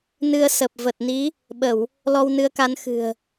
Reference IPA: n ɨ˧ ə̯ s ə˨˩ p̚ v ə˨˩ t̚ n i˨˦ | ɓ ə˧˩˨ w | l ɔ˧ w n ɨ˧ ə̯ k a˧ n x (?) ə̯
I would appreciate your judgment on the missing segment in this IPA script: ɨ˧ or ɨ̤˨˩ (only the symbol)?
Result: ɨ̤˨˩